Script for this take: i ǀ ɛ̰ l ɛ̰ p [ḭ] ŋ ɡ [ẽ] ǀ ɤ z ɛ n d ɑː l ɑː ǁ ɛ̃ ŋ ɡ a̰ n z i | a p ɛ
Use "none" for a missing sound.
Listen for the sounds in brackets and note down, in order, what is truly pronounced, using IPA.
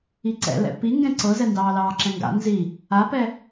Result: i, ɛ̃

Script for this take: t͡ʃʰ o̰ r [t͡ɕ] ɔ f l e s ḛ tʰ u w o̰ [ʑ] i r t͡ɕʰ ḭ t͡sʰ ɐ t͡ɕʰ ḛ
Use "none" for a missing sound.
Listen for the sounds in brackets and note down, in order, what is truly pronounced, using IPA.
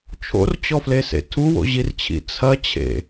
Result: t͡ɕ, ʑ

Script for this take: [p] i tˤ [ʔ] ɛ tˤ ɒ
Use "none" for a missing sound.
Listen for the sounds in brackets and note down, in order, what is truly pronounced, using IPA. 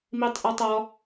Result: m, ʔ

